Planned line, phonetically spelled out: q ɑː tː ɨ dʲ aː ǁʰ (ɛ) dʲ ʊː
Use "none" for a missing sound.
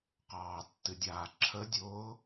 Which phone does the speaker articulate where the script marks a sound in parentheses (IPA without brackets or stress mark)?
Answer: ə